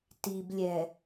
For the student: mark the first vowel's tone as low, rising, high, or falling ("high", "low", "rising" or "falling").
low